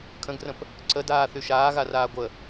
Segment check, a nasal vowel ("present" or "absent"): present